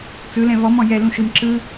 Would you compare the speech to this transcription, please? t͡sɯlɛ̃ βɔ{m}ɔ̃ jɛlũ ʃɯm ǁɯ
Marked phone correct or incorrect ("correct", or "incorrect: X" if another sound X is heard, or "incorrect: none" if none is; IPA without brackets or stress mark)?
correct